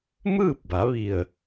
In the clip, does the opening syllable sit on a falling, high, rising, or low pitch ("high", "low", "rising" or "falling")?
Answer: falling